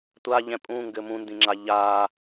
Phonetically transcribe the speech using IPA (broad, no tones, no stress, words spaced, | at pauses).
tʷaʎɛ̃ pʼũŋɡɘ mũndĩŋ͡ǁa ʎaː